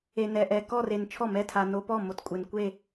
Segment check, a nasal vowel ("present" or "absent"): absent